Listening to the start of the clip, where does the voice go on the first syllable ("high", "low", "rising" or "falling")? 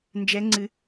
rising